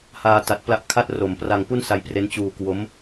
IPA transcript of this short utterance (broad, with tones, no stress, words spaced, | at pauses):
haː˧ ta˨˩t̚pla˦˥ʔkʰa˥˩t̚ro˨˩m pra˧ŋpu˥˩nsa˧jpre˦˥n t͡ɕuː˧kwo˦˥m